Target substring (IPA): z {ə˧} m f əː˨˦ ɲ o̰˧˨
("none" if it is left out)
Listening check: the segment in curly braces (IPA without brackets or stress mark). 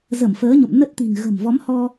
ə˧˩